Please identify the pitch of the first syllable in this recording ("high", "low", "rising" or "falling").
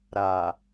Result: low